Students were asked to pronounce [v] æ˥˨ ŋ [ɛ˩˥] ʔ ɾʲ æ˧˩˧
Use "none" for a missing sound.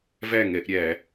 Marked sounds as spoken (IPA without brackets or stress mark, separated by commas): v, ɛ˧˩˧